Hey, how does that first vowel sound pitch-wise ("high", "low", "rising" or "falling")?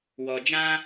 low